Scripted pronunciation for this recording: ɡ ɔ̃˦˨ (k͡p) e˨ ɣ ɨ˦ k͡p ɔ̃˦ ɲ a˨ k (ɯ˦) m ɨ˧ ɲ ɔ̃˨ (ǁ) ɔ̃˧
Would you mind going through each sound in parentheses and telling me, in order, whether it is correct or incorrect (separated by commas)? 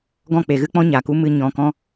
correct, incorrect, incorrect